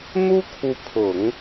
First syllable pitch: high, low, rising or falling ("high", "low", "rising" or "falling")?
high